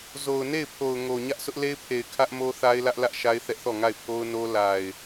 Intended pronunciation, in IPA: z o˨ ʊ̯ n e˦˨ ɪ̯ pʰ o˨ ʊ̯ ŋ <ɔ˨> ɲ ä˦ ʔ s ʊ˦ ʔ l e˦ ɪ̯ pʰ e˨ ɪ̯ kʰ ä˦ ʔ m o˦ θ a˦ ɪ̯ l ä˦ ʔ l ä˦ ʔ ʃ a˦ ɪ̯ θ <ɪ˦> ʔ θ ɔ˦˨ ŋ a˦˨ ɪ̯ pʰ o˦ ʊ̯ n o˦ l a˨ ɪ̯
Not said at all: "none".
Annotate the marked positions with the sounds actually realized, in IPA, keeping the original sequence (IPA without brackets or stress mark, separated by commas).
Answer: o˨, ɛ˦